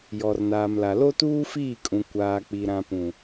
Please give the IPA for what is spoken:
j ɔ˨ r n aː˨ m l a˨ l o˦ t uː˦ f iː˦˨ kʼ ũ˨ kʷ aː˨ k͡p i˨ ɾ ã˨ p ũ˨

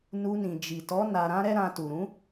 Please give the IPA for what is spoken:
n u˧ n ĩ˨ d͡ʒ i˨ t ɔ˨˦ n a˧ ɾ ã˦ ɾ ɛ˦ ɾ ã˧ t u˨ ɾ ũ˨˦

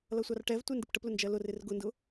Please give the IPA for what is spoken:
l ʌ sʷ ɑ r ʈ ɛ v tʷ ɛ n d ɪ p ʈ ə p l ʊ n d͡ʒ ɜ l ʊ r ɪ r ɡ ʊ n d ʊ

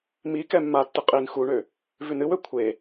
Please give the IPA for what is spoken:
m i k ɛ mː a tː ɨ qʼ i n x u ɳ ø | v ʉ n ɨ w ø kʷʰ e

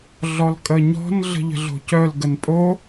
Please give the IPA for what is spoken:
ɮ ɔ l kʼ ə ɲ ɔ̤ n ɮ ə̤ ʎ ə̤ ɮ o̤ c œ l ɡ ə n pʼ o

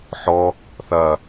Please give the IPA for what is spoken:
ħ ɔ | θ ɐ

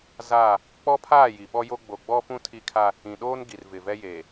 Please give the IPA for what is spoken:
z aː˦˨ | k͡p ɔ˦ pʰ aː˦˨ j i˨ ɓ ɔ˦ j o˦ ɡ͡b o˨ ɡ͡b ɔ˦ f ũ˦ tʰ i˦ kʰ a˦ | ĩ˨ ɗ oː˦ n ɡ i˨ r v ɪ˨ v ɛ˦ j eː˨

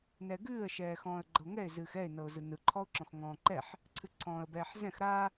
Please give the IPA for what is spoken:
n ɛ ɡ ɨː ə̯ ʃ ɛː x ɔ̃ː ə̯ ɡ͡ǃ ɤ ŋ ɛ ɪ̯ z ɨː x ɛ ɪ̯ n ɤ ʊ̯ z ɯ n ɯ ǃʰ ɔ ʊ̯ ǁ ɔ̃ x ŋ ɔ̃ː ǃ ɛ ħ | ǀʰ ɨ ǀʰ ɔ̃ː ə̯ b ɛː ħ z ɛ̃ x ɾ a

